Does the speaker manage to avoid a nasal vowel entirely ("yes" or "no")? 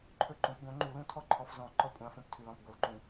no